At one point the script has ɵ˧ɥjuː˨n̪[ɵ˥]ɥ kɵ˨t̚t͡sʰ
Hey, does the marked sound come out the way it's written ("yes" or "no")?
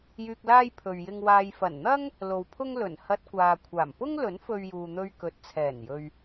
no